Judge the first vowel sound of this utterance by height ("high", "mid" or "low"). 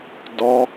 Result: low